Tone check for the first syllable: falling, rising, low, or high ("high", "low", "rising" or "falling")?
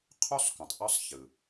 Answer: high